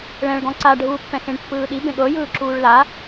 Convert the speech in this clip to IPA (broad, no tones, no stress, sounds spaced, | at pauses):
ɭ ɛ̃ ɭ ɡ ɔ̃ ǀ a ɖʱ uː pː ɛ̃ x ẽ ɳ pː ɯː ɗ i b ẽ ɠ ɤ j ɯː ǁ uː ɭ l a